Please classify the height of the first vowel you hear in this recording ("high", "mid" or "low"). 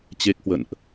mid